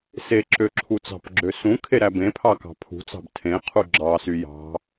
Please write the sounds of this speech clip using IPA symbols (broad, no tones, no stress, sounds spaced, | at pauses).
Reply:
s e ǁ ø ǁʰ u t͡s ɑ̤ p ɡ͡ǁ ø s ũ kʰ e ɾ æ b ẽ pʰ ɑ k ɑ̤ pʰ ṳ t͡s ɑ̤ b tʰ ẽ qʰ u ɡ͡ǁ ɑ s y j ɑ̤